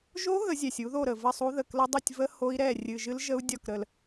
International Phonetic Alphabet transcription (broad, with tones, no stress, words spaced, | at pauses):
ʒo˦˥ ɣə˨˥zʲɛ˨˩sʲu˨˥ ðo˥˨ɾə˨˩və˥˨sˤu˦˥ ðə˨˩klə˦˥dˤo˥˨tʲ və˦˥ ho˦˥i̯ɾɛ˥˨ rʲɨ˨˩ʒɨ˦˥lʒə˦˥u̯ dʲɒ˥˨k ɾə˨˩l